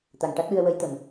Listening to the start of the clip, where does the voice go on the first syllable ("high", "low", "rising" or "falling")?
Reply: low